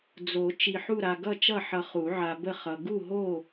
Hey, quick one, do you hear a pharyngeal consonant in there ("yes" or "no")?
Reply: yes